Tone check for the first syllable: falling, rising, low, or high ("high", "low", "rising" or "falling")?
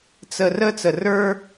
low